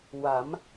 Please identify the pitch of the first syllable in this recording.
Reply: rising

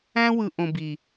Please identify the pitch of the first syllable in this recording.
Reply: high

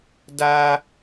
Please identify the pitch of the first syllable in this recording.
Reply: high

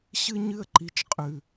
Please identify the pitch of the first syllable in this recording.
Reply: high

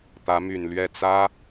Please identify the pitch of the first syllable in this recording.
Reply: rising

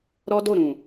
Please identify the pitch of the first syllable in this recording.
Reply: high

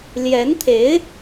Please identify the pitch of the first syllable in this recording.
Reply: rising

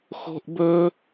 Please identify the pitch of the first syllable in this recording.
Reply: high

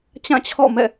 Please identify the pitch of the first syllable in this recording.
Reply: falling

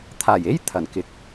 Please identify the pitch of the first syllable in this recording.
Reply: low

